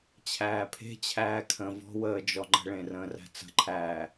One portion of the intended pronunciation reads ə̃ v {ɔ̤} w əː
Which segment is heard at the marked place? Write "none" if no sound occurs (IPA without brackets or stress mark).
ɔ̤